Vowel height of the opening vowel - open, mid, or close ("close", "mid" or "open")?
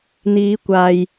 close